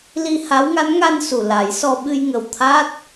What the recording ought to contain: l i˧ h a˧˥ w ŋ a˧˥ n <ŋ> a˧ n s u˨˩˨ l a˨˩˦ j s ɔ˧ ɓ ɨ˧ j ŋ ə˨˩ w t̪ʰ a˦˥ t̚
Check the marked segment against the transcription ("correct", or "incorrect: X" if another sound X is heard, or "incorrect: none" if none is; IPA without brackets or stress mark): correct